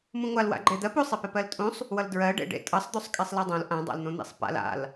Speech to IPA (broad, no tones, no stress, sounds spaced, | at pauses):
m ũ ŋʷ a l w a̰ ɡ͡ǃ e d̪ ɜ p o sˤ e p e p ɜ l tʼ ũ sˤ | w ʌ l d ɹ ɜ ɖ ḛ ɖ ḛ tʼ ʌ sˤ d̪ o sˤ kʼ e sˤ l a dˤ õ l ʔ ã dˤ a̰ l n̪ õ n̪ ḛ sˤ p a̰ l a̰ l